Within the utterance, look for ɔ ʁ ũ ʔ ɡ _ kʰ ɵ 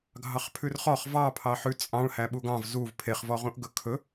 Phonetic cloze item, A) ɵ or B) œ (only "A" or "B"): A